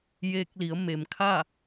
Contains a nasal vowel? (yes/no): no